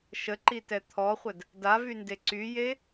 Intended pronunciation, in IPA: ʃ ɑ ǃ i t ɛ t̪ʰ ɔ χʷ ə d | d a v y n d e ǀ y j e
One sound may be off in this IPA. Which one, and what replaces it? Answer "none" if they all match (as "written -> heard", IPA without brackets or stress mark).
ɑ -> ə